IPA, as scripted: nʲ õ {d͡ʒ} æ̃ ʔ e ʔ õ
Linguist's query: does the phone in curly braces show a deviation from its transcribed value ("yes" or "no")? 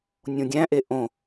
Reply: yes